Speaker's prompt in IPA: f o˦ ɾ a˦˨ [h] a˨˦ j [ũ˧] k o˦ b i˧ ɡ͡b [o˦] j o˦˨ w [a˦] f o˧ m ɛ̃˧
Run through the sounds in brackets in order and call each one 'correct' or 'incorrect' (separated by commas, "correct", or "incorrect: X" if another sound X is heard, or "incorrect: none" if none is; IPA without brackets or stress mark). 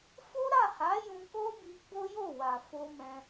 correct, correct, correct, incorrect: a˨